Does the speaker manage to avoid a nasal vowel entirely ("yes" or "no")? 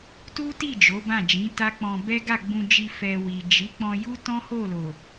no